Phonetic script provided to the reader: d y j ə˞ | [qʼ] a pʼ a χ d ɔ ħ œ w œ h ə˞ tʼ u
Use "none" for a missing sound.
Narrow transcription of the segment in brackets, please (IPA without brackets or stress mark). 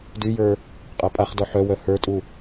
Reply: qʼ